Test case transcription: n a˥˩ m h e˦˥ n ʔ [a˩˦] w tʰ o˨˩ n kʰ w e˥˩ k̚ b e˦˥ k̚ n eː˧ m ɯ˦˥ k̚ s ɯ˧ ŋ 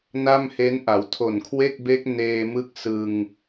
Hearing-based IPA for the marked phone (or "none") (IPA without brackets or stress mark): a˩˦